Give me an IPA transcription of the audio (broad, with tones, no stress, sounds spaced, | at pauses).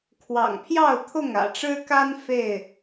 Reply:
kʰ w ɑ̰˨˩ ŋ pʰ j ɑ˥˨ ʊ̯ t̪ʰ ʊ˥˨ ŋ ä̰˨˩ ʈ͡ʂ ɻ̩˦ k a˦ n f e˥˨ ɪ̯